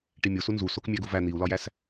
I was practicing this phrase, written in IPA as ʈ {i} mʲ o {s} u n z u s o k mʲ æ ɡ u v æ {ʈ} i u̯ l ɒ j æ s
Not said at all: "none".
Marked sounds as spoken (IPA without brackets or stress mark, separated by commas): i, s, n̪